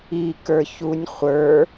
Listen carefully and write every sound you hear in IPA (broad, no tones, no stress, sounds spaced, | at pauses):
i k ə˞ ç u nʲ χʷ ə˞